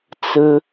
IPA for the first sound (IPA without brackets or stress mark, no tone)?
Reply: t͡s